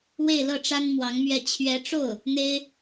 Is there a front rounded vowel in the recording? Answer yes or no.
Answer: no